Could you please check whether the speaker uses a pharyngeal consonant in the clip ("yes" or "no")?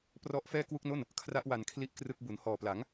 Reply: no